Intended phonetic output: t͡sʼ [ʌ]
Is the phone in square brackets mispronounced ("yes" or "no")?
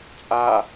yes